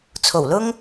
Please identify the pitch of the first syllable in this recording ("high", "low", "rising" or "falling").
low